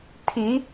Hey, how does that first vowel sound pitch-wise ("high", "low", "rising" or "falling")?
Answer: rising